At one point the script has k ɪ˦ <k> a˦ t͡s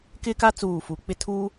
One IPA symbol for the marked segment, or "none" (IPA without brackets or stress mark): k